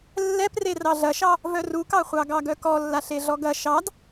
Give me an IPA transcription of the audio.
lːɛpre rɑɮɐʃɑ | vœrukɑ χʷɑɡɑɡœkɔ lːaɬeɮɔɡɐ ʃɑd

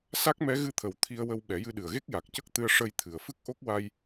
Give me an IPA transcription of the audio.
sa˦˥k̚mɛ˧˥ɣɨ˧t̪ʰə˨˩w t̪ʰi˧ə̯wə˧w ɓɛ˨˩˦jɨ˧ɗɨ˨˩ə̯ɣe˦˥k̚ ja˨˩k̚cə˦˥k̚t̪ɨ˧ə̯ ʂə˧jt̪ʰɨ˨˩ə̯fɨ˦˥k̚ ʔo˦˥k̚wa˧j

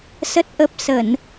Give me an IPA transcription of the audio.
sə˦˥t̚ʔə˦˥p̚ sə˧˩˨n

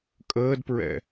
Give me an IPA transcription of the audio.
kʼəːdpɹɛ̰

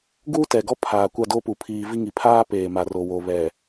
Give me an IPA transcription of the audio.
ɡuː˦tɛ˨ɡɔ˦ pʰaː˨kʷa˦˨do˦pu˨ pʰiː˨vi˦ ŋi˨pʰaː˦ peː˨ma˨ro˨wo˨ βɛ˨

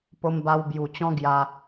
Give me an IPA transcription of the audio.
po˧mba˧w bju˨˩t͡ɕɔ̃˦ ɡja˧

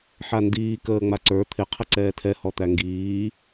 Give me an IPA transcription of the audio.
ħandiː kəːŋ͡maǀə˞ t̪ʰɪ qʰəǀɛːtʰɛ hɔt̪æŋɡiː

